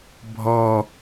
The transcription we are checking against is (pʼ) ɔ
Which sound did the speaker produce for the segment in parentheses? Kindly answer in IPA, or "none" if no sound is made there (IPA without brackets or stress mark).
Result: bʱ